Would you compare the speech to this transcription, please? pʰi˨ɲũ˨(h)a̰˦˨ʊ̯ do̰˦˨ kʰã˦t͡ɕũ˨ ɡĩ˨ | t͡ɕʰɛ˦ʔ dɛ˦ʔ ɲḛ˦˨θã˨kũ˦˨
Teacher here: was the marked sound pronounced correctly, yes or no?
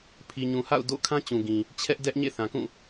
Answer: yes